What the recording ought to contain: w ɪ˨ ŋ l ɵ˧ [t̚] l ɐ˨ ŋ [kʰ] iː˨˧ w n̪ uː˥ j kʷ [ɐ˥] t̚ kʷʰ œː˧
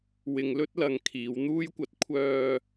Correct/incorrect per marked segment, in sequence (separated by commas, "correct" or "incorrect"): correct, correct, incorrect